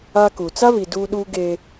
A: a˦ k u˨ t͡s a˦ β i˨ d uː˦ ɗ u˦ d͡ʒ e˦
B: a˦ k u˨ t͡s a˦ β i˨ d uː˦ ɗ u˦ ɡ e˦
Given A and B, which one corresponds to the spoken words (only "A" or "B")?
B